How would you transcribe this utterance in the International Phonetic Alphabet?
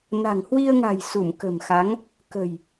n a̤˨˩ ŋ h w i˧ ə̯ ŋ a̤˨˩ j s u˧˩ m k ə̤˨˩ m x a˨˦ ŋ | k ə̤˨˩ j

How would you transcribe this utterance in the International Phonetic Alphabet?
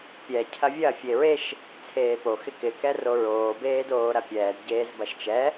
pʲ ɛ cʰ ɐ vʲ ɐ fʲ e ɹ e ʃ | t͡sʰ eː p o x ɪ k ɪ k ɛ r o ɹ oː b eː d oː ɾ ɐ pʲ ɛː d ɟ eː z b ɐ ʃ t͡ʃ ɛ

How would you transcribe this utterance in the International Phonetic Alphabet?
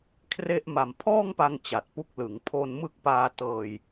kʰ r e˥˩ ʔ m a˨˩ m pʰ ɔː˥˩ ŋ p a˧ ŋ t͡ɕ a˨˩ t̚ p u˦˥ k̚ l ɯ˩˦ ŋ pʰ o˧ n m ɯ˦˥ k̚ p aː˧ t ɤː˧ j

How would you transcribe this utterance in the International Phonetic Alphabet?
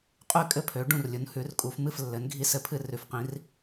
qʼ ʉ˥˩ kʼ ɘ˥˩ pʰ ø˩˥ ɖ ũ˥˩ r lʲ u˩˥ n h ʉ˩˥ r kʼ u˩˥ f m ɨ˥˩ f lː ɘ˩˥ n ɡʱ i˥˩ s ɘ˥˩ pʰ ɨ˥˩ r ʉ˩˥ f q ĩ˩˥ r

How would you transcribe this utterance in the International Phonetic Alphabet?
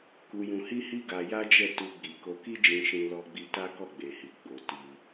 k u˧ j ũ˧ h i˦ h i˦ ɡ a˧ j a˦ d͡ʒ ɛ˦˨ t u˧ ɡ͡b i˨ k o˧ k i˦ d͡ʒ ĩ˧ ʃ ĩ˧ l ɔ˧ ɡ͡b i˧ t a˦ k ɔ˦˨ ɡ͡b e˨ h i˨ ɡ͡b o˨ t i˧

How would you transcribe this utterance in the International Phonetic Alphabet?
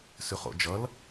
s ʉ χ o̰ d͡ʒ ʌ l

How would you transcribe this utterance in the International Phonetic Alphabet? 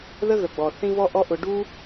ð ə˦ ɣ ə˨ ɡ͡b ɔ˨ θ ĩ˧ v ɔ˧ ʔ ɔ˧ ʔ ʊ˧ ɖ u˦

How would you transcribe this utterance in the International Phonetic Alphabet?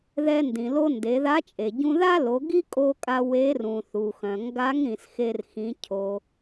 ð ɛ˧ n d ĩ˩ l o˧ n d e˩˧ ð a˧˥ t͡ʃʼ e˩ ɟ ũ˧ ð a˥ l o˩˧ ɡ i˥ kʼ o˧ kʼ a˧ w e˧˥ r ũ˩ θ u˩ x œ̃˩ ŋ ɡ a˧˥ ŋ ɾ ĩ˩ s x e˧ r x ĩ˩˧ cʰ o˩

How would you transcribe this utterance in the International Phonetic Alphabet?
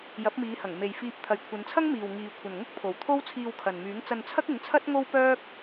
j ɐ˨˥ p̚ m iː˨˧ h ɐ˨˩ ŋ m e˨ j f iː˧ p̚ t̪ʰ ɐ˨ j kʷʰ ɐ˨˧ n t͡sʰ ɐ˥ ŋ m iː˨ w ŋ iː˨ kʷʰ ɐ˨ n ŋ ʊ˥ k̚ pʰ o˨ w t̪ʰ o˥ w t͡sʰ iː˧ w kʰ ɐ˨ n m yː˨˥ ŋ t͡s ɐ˧ n t͡sʰ ɐ˥ k̚ ɪ˨˥ ŋ t͡sʰ ɐ˥ t̚ ŋ o˥ w p œː˥ k̚

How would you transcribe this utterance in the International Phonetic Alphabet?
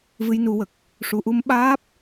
v ɨ˧˥ j n u˨˩˦ w ə˨˩ k̚ | ʂ u˨˩ ʔ u˧ m ɓ aː˦˥ p̚

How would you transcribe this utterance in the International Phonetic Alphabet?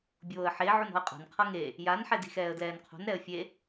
bʲ oː ə̯ ħ e ʕ u n ɔ̤ ə̯ qʼ a̤ n qʰ ɤ ŋ e | j a n ħ ɛ d i̤ x ɛː ə̯ d l ɛː n qʰ o̤ n ɾ ɛ ə̯ fʲ e

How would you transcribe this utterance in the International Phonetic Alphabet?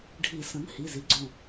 ɖʱ i˨˩˦ s ə̃˩˥ n h i˩˧˩ z i˩˥ ɡ͡ǀ õ˧˩

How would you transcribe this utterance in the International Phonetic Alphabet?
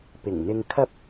p ɪ˨˩ ŋ n̪ ɪ˧ ŋ kʰ ɐ˥ p̚

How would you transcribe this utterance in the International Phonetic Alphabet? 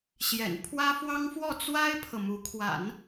ɕ j ɛ̰˨˩ n pʰ w ä˥ f w ɑ˥ ŋ f w ɔ˥˩ t͡s w a˥ ɪ̯ pʰ ɤ˨ m u˧˥ kʰ w a̰˨˩˦ n

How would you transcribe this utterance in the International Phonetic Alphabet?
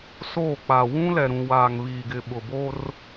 s oː˦˨ k͡p a˨ w ũ˦ l ɛ˨ ɾ ũ˨ w aː˨ ŋ β iː˨ ɡ ɪ˨ ɓ ʊ˨ b o˦ r

